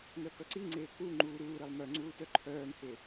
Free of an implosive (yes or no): yes